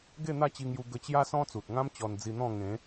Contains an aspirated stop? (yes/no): no